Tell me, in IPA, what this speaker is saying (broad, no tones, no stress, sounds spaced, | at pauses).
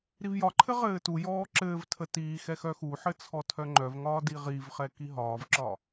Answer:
ɾ i v j ɒ ǃʰ ɘ ʁ ɘː t u j ɔː ǁ ɘː v tʰ ə t iː x ɛ x œ x u ħ ɘ t͡sʰ ɔ tʰ œ ŋ͡ǃ œ v ŋ ɒː d i ʁ i v χ ɛ k i ɦ ɒː v ǁ ɒ